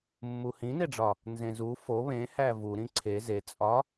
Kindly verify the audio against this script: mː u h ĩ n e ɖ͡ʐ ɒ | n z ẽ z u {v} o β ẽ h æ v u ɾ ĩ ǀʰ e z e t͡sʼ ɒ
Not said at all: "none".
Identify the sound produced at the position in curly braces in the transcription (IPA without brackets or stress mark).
f